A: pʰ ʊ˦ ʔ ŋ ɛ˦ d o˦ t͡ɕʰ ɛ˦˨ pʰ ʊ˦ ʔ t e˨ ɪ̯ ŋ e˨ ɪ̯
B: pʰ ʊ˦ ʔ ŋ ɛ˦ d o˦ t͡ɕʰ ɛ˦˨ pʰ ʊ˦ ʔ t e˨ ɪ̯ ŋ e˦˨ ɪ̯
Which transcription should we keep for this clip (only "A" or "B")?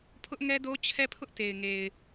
A